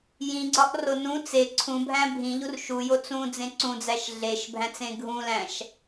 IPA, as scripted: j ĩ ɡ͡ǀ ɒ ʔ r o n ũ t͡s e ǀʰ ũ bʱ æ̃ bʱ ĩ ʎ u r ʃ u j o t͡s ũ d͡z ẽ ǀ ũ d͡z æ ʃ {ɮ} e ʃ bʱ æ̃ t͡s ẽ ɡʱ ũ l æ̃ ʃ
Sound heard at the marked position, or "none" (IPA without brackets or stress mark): ɮ